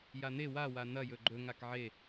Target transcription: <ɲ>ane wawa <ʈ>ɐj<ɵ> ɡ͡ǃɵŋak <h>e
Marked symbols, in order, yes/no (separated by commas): no, no, yes, no